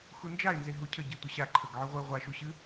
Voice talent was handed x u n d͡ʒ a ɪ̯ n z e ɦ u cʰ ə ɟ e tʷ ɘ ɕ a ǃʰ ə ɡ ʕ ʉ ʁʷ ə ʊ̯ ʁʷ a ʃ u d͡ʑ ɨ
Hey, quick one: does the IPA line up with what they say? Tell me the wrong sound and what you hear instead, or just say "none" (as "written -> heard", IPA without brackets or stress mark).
d͡ʑ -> ɕ